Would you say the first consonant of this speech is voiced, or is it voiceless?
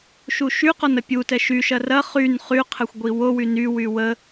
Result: voiceless